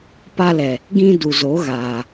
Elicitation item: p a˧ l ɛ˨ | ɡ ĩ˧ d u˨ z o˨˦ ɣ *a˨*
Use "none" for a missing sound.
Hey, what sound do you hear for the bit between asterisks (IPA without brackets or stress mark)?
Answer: aː˨